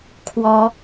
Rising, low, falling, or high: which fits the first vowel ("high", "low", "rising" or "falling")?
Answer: rising